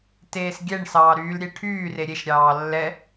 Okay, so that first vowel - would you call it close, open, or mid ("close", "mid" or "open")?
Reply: mid